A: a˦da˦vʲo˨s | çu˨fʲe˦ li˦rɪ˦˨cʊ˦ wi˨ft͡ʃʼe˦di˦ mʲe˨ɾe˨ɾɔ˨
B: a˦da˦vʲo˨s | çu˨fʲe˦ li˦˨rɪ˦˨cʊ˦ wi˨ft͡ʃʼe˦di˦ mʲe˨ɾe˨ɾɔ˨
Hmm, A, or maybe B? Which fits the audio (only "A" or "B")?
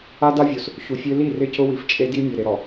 B